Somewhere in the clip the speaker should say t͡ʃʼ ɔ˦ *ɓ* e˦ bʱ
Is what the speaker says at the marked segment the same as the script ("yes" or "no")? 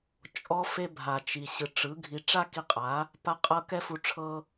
no